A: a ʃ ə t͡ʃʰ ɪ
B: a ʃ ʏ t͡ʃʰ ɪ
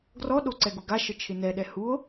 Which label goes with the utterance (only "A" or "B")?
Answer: A